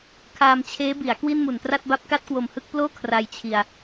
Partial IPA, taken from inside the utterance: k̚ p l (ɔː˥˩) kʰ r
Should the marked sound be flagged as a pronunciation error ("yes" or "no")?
yes